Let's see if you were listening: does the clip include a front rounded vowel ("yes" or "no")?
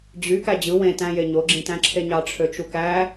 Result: yes